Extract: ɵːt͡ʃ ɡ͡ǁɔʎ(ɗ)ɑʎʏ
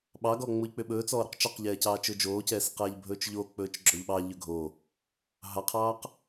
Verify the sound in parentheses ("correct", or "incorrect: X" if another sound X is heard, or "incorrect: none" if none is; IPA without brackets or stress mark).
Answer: incorrect: ɓ